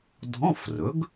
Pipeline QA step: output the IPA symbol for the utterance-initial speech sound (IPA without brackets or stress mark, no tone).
dʱ